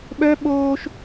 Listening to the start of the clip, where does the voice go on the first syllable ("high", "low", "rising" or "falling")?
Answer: high